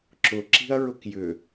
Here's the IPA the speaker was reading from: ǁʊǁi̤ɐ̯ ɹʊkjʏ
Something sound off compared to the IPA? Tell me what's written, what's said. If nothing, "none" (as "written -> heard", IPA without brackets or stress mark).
none